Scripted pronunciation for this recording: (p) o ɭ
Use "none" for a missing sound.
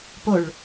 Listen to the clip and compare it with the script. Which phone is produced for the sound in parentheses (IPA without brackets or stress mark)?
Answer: p